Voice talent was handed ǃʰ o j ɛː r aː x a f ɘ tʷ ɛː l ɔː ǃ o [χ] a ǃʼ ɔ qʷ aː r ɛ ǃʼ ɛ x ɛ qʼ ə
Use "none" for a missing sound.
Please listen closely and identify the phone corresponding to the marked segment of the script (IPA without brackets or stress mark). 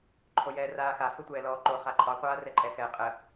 χ